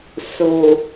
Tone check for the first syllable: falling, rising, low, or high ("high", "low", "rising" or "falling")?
low